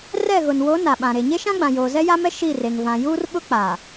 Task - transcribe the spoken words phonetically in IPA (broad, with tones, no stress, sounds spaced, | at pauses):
r ɛ˦˨ ɣ ʊ˨ n w o˨˦ n a˨ ɓ ã˨ ɾ e˨ ɲ e˦ ʃ ã˦ ɡ͡b ã˨ j oː˨ z ɛ˦ j a˦ m ɛ˦ ʃ i˦˨ r e˨ ŋ v ã˨ j uː˦ r ɓ ʊ˦ k͡p a˨